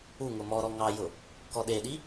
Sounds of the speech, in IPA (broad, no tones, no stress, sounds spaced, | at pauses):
u ŋ ʊ m ɔ ɾ ɔ ŋ ɑ j ʊ | k ɔ ɗ e ɗ i